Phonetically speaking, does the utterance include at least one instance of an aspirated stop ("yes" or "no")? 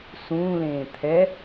yes